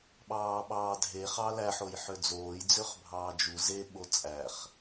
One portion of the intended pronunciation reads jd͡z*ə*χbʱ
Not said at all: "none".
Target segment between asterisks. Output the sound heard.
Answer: ø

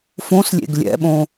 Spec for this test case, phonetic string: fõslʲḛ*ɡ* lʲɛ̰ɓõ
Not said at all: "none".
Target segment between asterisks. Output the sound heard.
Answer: ɡ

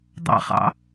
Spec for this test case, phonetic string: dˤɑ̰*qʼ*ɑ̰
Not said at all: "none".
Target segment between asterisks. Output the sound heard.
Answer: χ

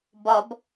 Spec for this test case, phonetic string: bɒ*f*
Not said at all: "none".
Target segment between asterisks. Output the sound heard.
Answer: b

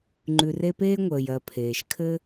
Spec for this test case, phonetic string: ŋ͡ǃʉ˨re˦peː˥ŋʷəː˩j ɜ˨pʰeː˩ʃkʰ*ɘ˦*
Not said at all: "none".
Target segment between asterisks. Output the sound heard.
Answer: ɘ˦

